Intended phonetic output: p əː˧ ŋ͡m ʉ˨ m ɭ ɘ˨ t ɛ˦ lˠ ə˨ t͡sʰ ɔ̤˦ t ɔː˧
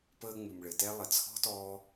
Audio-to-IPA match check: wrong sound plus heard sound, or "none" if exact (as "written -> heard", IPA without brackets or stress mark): none